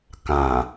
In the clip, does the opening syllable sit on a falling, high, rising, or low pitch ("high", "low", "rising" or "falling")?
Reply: low